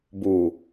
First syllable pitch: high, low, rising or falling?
low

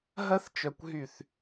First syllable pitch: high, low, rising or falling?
high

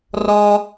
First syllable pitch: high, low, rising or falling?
high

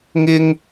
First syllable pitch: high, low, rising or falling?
high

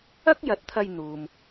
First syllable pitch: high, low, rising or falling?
high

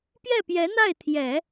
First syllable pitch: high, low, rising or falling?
falling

